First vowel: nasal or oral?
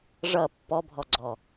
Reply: oral